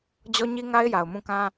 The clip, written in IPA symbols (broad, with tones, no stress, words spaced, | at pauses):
d͡ʑɔ˦ɲi˦ŋa˦ɪ̯ ja˨ʊ̯mũ˦˨kã˦